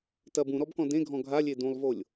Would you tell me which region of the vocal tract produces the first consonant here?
tongue tip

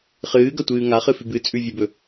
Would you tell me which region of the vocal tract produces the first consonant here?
uvula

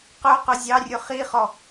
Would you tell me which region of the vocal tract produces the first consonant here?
uvula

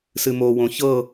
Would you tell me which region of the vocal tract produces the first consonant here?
tongue tip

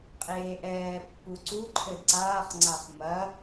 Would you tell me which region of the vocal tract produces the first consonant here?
uvula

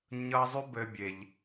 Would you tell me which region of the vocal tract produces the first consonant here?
palate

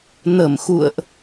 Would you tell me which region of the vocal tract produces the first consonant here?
tongue tip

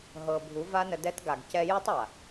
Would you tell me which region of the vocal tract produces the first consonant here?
throat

